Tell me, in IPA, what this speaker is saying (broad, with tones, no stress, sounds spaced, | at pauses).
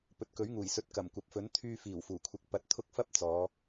p ɵ˨ t̚ k ɵ˨˥ ɥ ŋ uː˨˩ j s ɵ˨˥ t̚ k ɐ˨˩ m kʷ ɐ˨ p̚ f ɵ˨˥ n t̪ʰ yː˧ f iː˨˩ w f uː˨˩ kʷʰ ɪ˨˥ k̚ p ɐ˨˥ t̚ t̪ʰ ʊ˥ k̚ f ɐ˥ p̚ t͡s ɔː˨˧